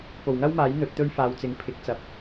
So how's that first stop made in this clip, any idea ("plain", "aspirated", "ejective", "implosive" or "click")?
plain